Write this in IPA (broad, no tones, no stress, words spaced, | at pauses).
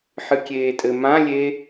ħɨkʲeːtʼɘ mãlʲe